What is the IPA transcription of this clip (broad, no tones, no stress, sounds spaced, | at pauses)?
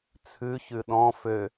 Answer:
t͡sʰ ʉ ç ʉ ɗ ɔ̃ f ø